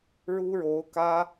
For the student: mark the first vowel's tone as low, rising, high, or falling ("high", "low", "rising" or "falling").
high